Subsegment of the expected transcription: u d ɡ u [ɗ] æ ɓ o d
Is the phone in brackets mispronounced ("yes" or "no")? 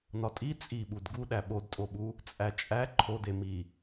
no